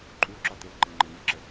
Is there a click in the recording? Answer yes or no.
yes